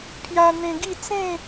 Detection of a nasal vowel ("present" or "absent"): present